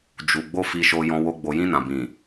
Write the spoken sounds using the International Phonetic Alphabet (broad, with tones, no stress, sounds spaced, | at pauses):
d͡ʒ u˨ ɡ͡b o˧ f i˧ ʃ o˧ j ɔ̃˧ w o˧ ɡ͡b o˨ j ĩ˧ n ã˨ b ĩ˨